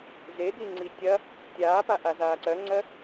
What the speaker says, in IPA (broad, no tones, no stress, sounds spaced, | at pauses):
z e d̪ i ŋ͡ǀ i tʲ ɐ | tʲ aː p a ʔ a z aː ǀ ɜ ŋ͡ǀ ɜ